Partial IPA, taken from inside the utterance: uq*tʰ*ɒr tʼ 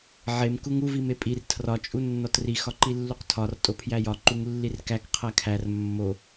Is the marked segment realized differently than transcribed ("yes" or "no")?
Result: no